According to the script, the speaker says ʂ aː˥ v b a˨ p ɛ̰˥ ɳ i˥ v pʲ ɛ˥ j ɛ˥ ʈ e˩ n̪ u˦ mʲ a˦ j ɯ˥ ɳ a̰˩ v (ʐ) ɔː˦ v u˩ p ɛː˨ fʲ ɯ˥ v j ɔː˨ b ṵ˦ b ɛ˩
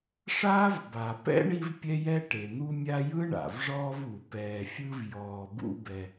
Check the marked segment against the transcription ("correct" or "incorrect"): correct